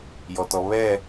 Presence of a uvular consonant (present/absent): absent